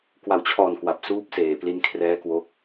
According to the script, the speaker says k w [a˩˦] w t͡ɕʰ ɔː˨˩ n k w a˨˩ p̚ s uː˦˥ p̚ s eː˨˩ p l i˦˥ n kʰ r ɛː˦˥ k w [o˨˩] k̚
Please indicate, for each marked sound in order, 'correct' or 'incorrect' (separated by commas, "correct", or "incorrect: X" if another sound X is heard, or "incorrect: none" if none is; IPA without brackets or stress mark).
incorrect: a˨˩, incorrect: o˦˥